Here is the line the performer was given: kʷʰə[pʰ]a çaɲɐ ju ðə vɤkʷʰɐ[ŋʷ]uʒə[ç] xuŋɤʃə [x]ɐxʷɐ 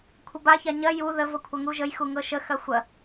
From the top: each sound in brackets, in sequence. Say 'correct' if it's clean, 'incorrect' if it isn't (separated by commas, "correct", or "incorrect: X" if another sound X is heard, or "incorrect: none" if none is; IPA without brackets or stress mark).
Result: incorrect: b, incorrect: ŋ, incorrect: j, correct